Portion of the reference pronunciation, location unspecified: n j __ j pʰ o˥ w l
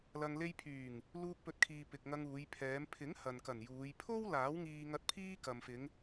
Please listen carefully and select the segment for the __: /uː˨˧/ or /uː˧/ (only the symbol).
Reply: uː˨˧